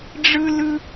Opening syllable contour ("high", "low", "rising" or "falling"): high